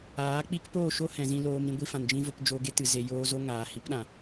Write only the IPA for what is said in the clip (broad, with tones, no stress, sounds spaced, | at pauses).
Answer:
aː˨˦ k͡p i˦ k p oː˦˨ ʃ o˦ h ɛ̃˨ z ĩ˧ l oː˧ m ɾ ĩ˧ ɡʷ i˧ f ã˨ n d͡ʒ ĩ˧ v o˧ p d͡ʒ o˧ ɡ e˦ t ɨ˨ z e˨ j oː˧ z o˦ ŋ aː˨ h i˨˦ p ɗ ã˨